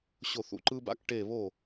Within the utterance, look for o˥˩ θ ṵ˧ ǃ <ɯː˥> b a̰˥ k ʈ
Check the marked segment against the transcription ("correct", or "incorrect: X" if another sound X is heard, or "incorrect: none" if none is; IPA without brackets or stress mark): correct